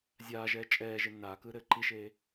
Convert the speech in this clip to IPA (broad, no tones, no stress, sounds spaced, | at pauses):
zʲ aː ʒ ɛː t͡ʃʼ ɛː ʒ e nː aː k ɯː ɾ ɘː ǃ i ʃ eː